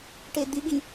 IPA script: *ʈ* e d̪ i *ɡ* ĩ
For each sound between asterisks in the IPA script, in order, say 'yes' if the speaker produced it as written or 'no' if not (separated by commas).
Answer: yes, yes